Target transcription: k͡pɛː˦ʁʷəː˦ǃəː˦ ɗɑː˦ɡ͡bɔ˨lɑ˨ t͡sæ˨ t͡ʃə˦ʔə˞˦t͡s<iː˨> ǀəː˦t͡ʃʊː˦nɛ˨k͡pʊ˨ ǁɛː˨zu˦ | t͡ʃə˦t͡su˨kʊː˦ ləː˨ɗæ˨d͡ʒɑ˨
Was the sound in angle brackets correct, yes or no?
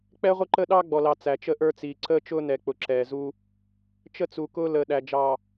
yes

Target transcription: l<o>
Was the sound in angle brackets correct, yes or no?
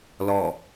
no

